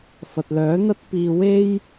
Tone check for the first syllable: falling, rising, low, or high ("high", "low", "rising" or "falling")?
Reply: low